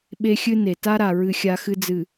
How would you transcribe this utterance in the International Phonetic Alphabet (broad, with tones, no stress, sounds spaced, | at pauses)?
ɓ e˦ xʲ ɨ˦ n e˨ t a˦ ɾ a˨ ɹ ɨ˦ xʲ a˦ x ɨ˦ d͡z ɨ˨